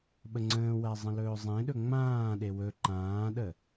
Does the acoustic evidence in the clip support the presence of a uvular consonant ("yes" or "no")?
no